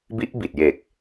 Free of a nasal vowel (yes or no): yes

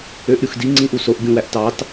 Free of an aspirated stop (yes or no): yes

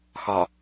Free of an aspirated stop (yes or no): yes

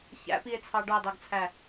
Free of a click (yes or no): yes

